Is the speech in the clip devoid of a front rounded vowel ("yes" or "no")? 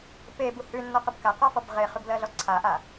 yes